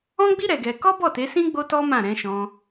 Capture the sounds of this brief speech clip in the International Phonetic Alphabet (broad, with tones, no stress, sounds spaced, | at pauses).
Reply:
ɔ̃˦ ɡ͡b i˦ ɾ ɛ˧ ɡ ɛ˧ k ɔ˦ b ɔ˦˨ t e˨˦ s ĩ˦ ɡ͡b o˦ t ɔ˦ m ã˦˨ ɾ ɛ̃˨˦ ʃ ɔ̃˧